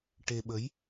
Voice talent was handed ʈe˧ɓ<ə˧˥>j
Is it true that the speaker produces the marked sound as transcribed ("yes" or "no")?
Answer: yes